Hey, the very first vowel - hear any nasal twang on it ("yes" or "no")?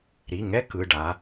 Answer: no